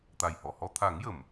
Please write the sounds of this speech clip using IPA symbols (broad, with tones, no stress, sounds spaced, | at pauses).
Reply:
t̪ a˨˩ j h ɔ˨˩ h ɔ˧ t̪ʰ a˨˩˦ ŋ j ə˨˩˨ m